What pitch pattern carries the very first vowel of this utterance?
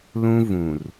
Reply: high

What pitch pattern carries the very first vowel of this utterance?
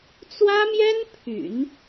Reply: high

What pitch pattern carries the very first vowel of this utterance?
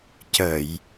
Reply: low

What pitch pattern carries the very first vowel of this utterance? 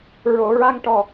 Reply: low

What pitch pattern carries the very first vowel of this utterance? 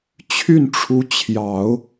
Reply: falling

